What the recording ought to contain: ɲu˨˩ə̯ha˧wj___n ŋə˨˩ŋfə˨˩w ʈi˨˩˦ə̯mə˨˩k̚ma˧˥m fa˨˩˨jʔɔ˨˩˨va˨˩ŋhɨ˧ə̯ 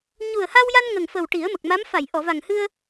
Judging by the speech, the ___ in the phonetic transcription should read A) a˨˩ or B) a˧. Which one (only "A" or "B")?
B